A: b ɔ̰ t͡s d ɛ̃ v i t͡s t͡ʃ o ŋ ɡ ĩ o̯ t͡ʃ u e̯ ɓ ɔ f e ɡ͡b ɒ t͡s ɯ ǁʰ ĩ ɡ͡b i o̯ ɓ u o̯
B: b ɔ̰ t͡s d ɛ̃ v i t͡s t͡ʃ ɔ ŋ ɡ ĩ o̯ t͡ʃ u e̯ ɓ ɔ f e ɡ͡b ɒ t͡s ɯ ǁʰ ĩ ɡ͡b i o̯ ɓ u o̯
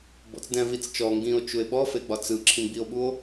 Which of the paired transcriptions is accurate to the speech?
B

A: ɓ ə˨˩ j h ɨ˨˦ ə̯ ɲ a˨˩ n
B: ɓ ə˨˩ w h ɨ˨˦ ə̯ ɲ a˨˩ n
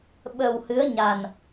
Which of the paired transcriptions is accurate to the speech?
B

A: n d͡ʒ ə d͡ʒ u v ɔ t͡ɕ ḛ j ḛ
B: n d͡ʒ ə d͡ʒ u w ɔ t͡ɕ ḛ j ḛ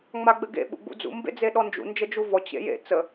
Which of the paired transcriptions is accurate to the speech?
A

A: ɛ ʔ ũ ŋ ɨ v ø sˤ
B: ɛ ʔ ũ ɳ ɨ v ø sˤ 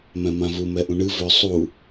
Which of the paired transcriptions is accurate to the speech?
B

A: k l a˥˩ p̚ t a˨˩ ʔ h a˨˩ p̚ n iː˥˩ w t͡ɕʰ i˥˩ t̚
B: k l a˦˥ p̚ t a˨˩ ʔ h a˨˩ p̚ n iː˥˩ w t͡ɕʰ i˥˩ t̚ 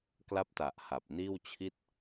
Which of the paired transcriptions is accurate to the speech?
B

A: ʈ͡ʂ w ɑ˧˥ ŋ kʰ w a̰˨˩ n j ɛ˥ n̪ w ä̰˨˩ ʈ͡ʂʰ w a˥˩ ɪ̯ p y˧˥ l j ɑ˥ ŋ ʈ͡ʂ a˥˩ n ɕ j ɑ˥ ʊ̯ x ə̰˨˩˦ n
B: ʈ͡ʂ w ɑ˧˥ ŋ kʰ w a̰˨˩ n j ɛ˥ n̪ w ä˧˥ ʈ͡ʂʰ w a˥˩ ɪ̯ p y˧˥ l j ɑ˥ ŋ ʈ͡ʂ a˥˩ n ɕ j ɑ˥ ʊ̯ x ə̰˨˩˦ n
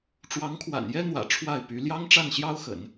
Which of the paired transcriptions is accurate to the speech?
A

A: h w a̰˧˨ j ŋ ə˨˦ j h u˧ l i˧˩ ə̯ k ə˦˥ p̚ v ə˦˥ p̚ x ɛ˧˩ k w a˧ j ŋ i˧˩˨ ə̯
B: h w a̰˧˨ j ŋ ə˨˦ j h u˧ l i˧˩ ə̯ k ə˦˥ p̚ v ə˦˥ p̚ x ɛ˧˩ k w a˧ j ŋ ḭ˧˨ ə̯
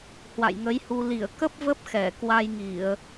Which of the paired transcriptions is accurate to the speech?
A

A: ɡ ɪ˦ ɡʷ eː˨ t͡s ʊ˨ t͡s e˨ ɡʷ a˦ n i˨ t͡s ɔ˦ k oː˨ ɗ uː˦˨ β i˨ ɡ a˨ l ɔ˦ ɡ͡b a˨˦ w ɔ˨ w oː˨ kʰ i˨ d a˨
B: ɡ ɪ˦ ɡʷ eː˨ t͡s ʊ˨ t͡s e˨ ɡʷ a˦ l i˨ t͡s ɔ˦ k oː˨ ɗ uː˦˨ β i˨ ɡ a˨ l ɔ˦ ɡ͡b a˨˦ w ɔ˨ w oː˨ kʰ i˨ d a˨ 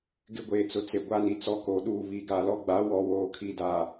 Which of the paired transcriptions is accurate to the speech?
A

